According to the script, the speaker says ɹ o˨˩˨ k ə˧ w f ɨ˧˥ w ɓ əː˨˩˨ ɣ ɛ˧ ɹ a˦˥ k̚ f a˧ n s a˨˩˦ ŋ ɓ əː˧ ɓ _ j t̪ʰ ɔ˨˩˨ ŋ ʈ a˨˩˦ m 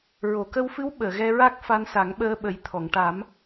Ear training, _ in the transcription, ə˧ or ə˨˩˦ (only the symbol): ə˨˩˦